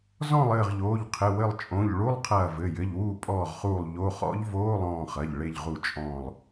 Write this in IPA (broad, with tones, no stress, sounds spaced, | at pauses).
z ɔ̃˦˨ lˠ ɘː˦˨ ʁ ʎ oː˩˧˩ ʎ qʰ ɘ˩˧˩ w ɘ˦˨ lˠ t͡ʃʼ õ˩˧˩ ʎ ɭ u˧˥˧ lˠ qʰ ɐː˦˨ v ɘ˩˧˩ j ɘ˩˧˩ ʎ w uː˦˨ pʼ ɔː˦˨ ʁ χ uː˦˨ lˠ ʎ o˧˥˧ χ ɔ̰˧˥ ʎ v oː˧˥˧ lˠ ɔ̃ː˦˨ χ ɐ˩˧˩ ʎ ɭ e˦˨ ʎ ʁ u˦˨ t͡ʃʼ ɔ̃ː˦˨ lˠ